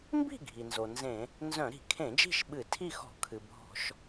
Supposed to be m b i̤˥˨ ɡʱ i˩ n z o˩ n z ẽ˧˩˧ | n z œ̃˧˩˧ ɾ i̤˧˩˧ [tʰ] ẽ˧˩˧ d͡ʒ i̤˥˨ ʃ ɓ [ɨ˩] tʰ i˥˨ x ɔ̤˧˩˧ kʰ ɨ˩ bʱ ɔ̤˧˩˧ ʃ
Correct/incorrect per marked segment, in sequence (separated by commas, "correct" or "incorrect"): incorrect, incorrect